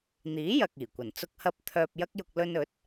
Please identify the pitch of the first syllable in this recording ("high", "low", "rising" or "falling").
rising